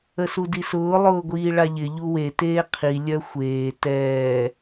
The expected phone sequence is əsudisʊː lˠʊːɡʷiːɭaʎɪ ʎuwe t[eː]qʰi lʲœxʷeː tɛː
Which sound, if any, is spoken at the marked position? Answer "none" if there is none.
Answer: eː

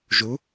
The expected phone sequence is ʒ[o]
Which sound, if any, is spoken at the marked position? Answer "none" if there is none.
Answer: u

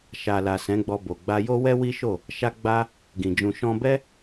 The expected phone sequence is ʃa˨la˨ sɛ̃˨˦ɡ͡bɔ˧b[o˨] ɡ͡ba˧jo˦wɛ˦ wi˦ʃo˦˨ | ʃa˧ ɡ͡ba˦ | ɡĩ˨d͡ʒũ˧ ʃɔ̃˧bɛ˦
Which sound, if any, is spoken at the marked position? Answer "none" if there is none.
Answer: o˨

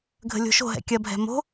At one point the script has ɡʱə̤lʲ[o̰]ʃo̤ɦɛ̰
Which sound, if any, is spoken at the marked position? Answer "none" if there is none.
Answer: o̤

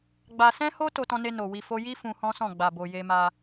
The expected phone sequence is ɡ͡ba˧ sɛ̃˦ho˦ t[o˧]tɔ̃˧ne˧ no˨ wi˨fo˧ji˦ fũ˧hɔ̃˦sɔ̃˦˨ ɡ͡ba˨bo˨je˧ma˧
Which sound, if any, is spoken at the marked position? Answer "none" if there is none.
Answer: o˧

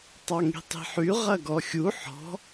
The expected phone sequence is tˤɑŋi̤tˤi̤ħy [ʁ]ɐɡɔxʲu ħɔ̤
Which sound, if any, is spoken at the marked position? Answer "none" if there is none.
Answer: ʁ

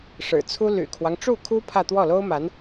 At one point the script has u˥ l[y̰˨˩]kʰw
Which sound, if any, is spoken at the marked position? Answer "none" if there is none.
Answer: y̰˨˩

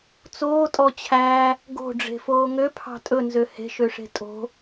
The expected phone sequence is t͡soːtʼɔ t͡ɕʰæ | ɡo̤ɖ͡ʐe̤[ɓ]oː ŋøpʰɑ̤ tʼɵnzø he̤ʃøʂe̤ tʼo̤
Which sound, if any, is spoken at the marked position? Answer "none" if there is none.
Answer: f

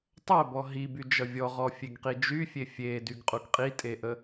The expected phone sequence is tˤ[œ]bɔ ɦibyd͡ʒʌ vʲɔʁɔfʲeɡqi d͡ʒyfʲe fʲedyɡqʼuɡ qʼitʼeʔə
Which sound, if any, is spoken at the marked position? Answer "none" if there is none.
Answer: œ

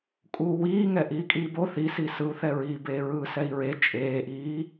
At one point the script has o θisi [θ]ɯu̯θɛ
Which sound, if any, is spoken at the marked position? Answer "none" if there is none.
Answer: s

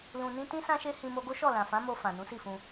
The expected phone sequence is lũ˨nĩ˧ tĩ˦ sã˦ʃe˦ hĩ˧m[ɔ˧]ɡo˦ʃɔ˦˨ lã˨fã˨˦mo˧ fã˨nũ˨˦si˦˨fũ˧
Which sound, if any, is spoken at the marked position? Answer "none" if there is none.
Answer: o˧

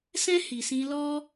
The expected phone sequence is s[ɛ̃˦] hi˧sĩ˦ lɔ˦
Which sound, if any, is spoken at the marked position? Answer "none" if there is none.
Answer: ɛ̃˦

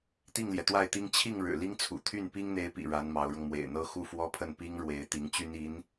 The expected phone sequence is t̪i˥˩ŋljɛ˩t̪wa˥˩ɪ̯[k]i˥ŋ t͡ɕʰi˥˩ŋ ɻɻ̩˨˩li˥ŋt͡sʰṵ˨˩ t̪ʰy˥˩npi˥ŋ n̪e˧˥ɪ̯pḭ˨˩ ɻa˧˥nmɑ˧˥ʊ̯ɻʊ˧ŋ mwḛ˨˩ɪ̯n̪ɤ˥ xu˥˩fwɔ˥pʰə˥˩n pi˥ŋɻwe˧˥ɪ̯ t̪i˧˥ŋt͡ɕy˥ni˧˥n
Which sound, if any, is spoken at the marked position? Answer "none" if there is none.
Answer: t̪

